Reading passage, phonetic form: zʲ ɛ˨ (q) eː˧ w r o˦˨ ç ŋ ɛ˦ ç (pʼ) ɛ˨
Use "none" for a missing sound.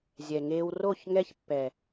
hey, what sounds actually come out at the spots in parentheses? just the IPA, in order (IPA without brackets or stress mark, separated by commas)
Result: ŋ, pː